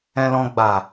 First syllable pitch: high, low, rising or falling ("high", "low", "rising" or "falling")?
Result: low